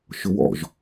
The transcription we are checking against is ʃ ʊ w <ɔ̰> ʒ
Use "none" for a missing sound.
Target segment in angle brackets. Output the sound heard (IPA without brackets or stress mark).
ɔ̰